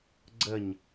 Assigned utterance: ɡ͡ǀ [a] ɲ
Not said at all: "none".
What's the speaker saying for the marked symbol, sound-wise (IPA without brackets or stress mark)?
ə